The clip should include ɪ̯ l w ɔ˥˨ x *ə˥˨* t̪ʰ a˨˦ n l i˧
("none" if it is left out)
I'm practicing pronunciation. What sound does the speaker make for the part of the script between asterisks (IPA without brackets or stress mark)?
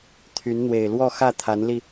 ä˥˨